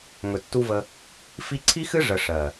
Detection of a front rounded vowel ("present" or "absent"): absent